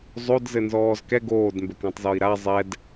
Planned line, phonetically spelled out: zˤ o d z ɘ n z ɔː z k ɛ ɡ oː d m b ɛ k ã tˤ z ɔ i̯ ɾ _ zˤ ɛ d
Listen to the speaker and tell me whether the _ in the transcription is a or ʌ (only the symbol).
a